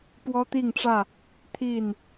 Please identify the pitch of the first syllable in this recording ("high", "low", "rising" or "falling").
high